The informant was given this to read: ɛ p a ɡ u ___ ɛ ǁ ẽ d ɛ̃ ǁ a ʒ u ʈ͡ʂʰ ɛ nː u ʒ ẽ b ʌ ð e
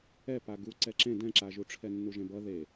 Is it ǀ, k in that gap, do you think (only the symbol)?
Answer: ǀ